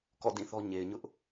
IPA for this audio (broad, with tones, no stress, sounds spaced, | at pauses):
k ɔ̰˦˨ d ĩ˦˨ θ ɔ˦ ɲ e˨ ɪ̯ ɲ ʊ˦ ʔ